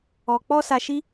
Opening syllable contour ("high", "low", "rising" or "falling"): low